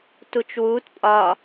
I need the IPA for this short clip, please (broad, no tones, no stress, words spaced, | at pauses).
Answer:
tut͡ʃwuːt pʼɒ